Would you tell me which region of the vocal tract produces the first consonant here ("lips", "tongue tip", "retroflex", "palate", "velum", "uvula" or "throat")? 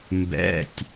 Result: lips